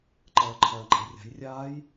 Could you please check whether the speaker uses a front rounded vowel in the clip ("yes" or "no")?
no